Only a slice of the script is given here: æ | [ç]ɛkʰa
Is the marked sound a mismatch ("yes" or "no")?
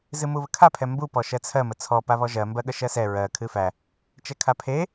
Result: yes